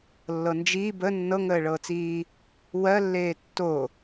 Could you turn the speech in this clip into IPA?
lːɤnd͡ʒiː bə nːɤŋəːɭɤːt͡siː | wɜlːeː tːo

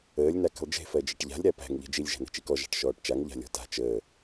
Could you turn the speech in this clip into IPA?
əːlʲ nakə̤lˠd͡ʒe̤ fɜd͡ʒeʈʎa̤lʲ ɾæpæ̤ŋ ʎe̤d͡ʒilʲ ʒæ̤ne̤t͡ʃikɔ ʒa̤ʈʃɔːʈt͡ʃaŋ ʎa̤lʲɔ̤ta̤ t͡ʃəː

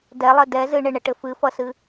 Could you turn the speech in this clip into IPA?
dɛlˠɘ dɛ zɨɳɘɳɘʈɘ fɨfʌsɨ

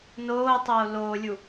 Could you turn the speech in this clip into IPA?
noːtˤoː loːlʲu

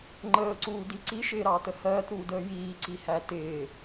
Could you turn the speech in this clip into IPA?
ŋ͡ǃəːǀuːdi ǀiʃɪːɾɑːtə hɜːtɾuːdəː jiːǀihæ tɪː

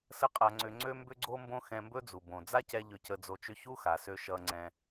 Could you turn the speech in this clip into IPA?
sə˥qʼa˧ŋ͡ǀʏ˧ ŋ͡ǀø˥mbʏ˥ɡ͡ǀo˥mbõ˥ xɛ̃˧mbɵ˥d͡zu˩ bõ˩ d͡za˥cɛ˧ ʎʏ˧cə˧d͡zo˧t͡ʃʏ˥ çu˥xa˩sø˧ ʃʌ˧ ŋ͡ǀɛ̃˧

